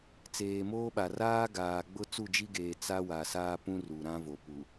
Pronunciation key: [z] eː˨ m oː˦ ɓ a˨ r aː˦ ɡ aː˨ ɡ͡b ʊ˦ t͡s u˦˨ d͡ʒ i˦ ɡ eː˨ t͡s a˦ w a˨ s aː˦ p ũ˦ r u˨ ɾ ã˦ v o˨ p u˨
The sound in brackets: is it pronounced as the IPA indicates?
no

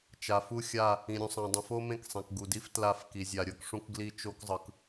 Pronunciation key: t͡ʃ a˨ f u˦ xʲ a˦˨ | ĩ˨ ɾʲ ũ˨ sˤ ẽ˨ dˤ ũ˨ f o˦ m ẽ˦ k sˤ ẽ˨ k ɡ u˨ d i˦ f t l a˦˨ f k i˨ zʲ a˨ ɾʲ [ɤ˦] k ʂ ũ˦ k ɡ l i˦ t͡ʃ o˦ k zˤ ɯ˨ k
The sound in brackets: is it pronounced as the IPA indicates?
yes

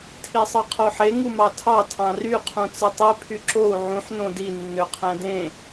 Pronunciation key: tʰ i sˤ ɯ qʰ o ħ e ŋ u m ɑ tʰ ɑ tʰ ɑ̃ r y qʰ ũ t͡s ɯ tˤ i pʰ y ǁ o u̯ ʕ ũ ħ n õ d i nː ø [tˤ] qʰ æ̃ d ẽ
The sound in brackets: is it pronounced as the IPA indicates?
no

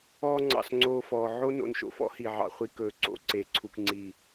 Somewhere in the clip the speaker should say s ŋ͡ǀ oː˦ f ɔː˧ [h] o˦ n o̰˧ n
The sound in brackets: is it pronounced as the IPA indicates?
no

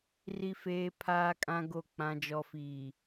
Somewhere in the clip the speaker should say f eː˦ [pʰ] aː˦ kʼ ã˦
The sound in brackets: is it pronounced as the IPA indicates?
yes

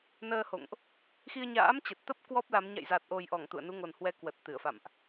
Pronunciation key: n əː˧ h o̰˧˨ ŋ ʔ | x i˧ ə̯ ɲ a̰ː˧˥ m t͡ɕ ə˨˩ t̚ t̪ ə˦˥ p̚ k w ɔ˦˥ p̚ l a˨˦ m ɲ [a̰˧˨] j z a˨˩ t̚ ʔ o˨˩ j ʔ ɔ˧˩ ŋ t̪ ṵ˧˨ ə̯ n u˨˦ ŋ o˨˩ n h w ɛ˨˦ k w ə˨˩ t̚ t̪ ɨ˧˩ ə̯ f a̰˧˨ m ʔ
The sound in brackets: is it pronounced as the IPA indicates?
yes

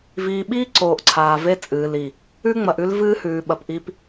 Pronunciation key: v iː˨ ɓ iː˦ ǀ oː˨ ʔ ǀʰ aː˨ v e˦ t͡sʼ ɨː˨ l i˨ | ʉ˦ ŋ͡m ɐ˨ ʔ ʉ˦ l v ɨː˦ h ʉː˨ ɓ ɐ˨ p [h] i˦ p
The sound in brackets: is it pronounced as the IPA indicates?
no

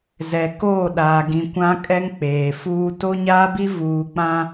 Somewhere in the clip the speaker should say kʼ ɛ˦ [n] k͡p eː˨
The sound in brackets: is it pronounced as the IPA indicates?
no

